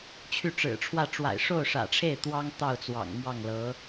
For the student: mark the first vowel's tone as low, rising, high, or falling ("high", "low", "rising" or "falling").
falling